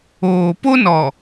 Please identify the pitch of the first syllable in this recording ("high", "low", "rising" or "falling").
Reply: low